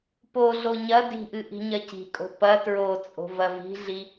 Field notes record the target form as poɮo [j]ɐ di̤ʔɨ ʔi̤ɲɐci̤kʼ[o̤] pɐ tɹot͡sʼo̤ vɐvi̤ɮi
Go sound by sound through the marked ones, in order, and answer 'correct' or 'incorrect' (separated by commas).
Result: incorrect, correct